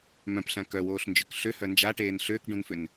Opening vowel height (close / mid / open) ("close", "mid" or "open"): mid